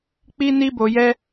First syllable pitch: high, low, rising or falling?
high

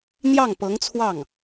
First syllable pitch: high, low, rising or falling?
falling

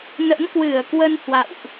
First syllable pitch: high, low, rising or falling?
rising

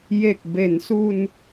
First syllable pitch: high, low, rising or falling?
low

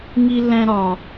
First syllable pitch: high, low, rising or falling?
high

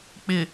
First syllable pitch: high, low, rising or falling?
low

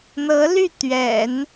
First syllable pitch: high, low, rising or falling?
rising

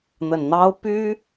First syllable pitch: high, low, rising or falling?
low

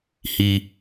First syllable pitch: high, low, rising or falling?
low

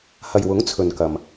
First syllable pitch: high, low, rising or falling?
low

